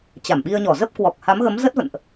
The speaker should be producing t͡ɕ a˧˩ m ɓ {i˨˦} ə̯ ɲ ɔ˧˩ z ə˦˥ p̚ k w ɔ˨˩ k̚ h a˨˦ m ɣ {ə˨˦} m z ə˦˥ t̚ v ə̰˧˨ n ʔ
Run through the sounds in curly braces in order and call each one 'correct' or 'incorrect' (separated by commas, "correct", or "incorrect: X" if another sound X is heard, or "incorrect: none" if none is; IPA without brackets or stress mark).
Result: incorrect: i˧, correct